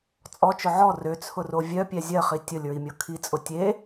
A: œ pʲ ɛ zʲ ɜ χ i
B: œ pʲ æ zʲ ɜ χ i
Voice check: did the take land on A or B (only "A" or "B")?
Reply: A